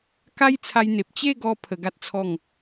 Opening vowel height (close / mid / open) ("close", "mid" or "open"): open